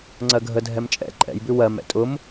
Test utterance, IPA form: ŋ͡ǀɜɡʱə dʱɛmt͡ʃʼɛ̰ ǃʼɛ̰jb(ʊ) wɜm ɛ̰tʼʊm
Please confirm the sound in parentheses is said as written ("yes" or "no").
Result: no